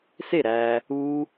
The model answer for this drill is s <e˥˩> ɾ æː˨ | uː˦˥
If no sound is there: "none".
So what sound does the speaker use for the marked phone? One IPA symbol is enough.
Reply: e˥˩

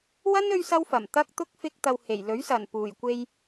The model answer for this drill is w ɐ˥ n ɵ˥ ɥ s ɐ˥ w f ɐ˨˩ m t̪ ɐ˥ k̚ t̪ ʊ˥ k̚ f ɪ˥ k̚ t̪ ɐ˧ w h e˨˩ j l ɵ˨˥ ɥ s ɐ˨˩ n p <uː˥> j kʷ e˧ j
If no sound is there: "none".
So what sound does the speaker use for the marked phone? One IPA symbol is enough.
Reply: uː˨˩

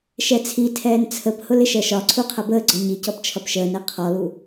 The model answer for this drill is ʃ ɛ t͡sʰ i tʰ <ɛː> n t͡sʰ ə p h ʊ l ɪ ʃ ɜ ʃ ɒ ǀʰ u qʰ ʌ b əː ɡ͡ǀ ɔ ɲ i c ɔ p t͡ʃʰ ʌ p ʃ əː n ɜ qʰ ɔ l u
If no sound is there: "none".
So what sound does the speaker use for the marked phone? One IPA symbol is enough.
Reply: ɛː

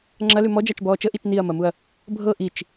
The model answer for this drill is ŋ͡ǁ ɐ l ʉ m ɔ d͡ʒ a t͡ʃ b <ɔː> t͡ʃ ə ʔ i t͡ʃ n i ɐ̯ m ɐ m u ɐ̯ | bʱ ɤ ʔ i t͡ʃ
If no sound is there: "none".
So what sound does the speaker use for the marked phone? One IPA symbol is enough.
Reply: ɔː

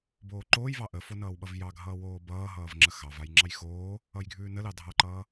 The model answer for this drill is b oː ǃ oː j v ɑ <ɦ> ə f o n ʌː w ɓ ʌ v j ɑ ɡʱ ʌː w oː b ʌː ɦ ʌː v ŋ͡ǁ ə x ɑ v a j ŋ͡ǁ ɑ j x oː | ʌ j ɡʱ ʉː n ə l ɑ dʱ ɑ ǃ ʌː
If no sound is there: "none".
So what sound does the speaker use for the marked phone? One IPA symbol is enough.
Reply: ʔ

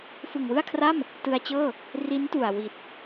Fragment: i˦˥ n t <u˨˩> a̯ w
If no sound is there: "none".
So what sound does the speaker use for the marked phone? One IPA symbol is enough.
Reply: u˨˩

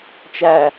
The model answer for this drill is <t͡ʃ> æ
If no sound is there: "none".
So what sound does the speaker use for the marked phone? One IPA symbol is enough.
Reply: t͡ʃ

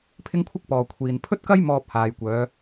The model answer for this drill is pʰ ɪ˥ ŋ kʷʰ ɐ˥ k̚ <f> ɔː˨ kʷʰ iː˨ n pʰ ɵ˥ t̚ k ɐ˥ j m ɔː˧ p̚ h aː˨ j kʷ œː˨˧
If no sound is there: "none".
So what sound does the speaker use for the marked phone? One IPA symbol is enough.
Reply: p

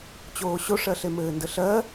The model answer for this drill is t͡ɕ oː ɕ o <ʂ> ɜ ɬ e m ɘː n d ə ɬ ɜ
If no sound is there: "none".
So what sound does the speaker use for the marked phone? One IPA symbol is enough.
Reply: ʂ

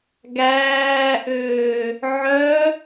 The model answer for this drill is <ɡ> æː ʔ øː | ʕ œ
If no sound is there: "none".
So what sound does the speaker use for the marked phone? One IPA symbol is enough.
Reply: ɡ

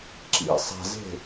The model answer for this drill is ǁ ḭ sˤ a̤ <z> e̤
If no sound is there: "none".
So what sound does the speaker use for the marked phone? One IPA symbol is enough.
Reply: z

